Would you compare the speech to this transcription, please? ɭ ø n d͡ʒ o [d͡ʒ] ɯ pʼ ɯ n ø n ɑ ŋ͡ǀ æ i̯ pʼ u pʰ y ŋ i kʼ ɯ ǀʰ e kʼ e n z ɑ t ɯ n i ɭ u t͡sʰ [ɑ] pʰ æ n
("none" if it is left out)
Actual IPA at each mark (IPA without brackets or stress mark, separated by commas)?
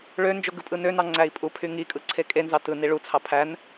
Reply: ɡ, ɑ